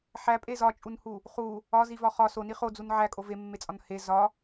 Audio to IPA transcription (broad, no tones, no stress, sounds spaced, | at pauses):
ħ æ pʼ e z ɒ t͡ʃʼ u n h u | χ u | ɒ z i v ɒ χ ɒ s o n i χ o d͡z u n ʕ æ kʼ o v e mː e t͡sʼ ɒ n h e z ɒ